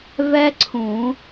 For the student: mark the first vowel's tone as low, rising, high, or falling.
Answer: high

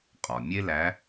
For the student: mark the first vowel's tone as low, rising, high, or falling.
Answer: low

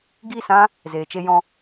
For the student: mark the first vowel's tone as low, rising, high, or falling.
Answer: falling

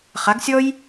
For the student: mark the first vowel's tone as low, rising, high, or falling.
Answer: rising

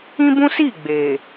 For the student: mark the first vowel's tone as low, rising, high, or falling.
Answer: high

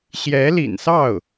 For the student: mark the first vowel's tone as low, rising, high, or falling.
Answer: rising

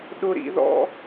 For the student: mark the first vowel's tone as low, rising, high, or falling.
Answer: low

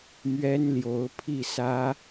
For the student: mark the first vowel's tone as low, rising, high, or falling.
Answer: high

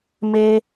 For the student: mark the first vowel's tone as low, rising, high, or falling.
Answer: high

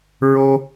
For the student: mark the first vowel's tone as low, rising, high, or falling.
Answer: high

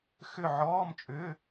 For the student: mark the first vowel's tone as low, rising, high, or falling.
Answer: falling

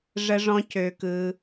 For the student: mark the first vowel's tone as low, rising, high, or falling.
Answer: high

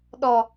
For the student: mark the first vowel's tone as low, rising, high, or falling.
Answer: low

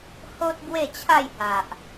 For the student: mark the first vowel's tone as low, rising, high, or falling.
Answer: high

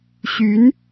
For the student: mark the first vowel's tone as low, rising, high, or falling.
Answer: rising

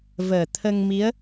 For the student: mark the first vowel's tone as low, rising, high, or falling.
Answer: low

